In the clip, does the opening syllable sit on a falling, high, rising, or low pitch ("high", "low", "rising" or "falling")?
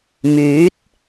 rising